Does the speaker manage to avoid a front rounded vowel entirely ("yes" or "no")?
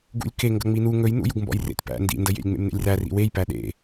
yes